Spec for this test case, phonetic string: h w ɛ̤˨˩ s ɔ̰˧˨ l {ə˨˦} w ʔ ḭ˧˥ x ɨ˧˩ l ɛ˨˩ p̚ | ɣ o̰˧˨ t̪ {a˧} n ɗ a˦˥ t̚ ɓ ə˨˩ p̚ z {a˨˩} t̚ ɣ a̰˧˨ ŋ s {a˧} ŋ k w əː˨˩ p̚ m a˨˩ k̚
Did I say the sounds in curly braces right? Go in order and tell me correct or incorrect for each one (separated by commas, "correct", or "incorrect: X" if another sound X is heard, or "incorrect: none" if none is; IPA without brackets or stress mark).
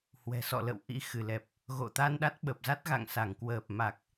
incorrect: ə̰˧˨, correct, incorrect: a˦˥, incorrect: a˧˩